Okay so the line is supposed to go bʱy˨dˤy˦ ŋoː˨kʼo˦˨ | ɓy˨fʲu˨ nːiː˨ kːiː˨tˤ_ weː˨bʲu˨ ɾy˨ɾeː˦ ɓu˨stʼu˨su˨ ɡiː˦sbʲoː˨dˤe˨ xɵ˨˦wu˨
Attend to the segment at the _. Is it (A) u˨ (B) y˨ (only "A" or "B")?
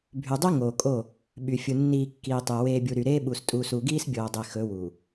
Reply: B